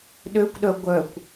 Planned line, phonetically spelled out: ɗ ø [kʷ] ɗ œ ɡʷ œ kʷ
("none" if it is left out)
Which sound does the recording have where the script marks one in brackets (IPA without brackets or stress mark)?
kʷ